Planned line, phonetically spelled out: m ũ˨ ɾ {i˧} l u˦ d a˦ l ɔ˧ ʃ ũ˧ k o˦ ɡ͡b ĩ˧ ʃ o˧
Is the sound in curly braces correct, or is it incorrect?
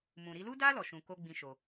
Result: correct